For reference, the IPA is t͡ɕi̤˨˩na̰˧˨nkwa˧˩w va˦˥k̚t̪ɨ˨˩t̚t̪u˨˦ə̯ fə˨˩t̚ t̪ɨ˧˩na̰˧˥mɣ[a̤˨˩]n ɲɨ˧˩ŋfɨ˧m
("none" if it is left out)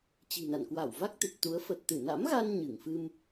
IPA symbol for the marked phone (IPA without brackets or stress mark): a˧